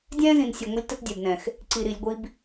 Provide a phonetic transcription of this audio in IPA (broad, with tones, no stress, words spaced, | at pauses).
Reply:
dʲɛ̃ː˦zĩ˨nsʲɤ˨ ŋʷə˦lʲ tə˦tdʲɛ˨bnɛ̃˨x | ǀi˨ɾi˨lʲ ɡʷi˦b